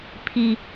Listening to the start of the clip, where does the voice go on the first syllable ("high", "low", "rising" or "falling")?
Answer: high